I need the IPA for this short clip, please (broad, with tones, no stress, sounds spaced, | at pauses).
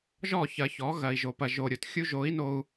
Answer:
ʒ ɔ˦˨ ç ɐ˨ ç ɔ˨˦ ɣ ɐ˨ i̯ ʒ o˨ p ɐ˨ ʒ o˨ ɾʲ o˨ t xʲ u˦ ʒ o˨˦ i̯ n o˨ u̯